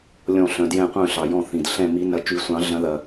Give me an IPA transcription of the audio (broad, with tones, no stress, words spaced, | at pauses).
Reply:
lʲɔ̃˧˩ ɬœ̃˩djɛ̃˧˩qʷœ̃˧˩ ɬɑ˩jɔ̃˧˩θĩ˩d ɬɛ̃˧˩mi˨˩˦ nɐ˨˩˦ t͡ʃy˨˩˦sʷɑ̃˨˩˦ ɮɐ̃˨˩˦ðɐ˩